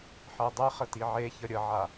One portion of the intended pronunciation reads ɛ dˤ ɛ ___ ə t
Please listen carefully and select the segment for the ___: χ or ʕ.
χ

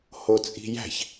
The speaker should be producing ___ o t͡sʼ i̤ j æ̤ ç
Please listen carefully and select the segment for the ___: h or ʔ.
h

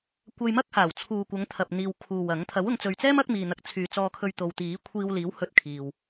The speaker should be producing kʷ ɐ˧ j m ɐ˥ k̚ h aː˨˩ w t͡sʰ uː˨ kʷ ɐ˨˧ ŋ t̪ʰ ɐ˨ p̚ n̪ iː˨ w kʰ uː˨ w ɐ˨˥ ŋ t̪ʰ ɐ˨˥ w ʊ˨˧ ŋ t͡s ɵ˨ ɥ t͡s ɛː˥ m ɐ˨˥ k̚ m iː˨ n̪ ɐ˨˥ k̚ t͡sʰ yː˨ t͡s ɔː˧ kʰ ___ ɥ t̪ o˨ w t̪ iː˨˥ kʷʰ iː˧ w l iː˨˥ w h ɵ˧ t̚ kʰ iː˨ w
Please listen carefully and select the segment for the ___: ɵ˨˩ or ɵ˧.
ɵ˧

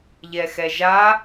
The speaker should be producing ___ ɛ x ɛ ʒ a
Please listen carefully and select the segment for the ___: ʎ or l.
ʎ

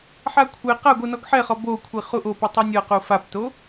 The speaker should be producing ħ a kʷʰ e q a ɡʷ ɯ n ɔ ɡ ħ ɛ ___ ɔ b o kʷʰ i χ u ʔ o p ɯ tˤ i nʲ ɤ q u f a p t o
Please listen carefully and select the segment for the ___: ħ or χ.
χ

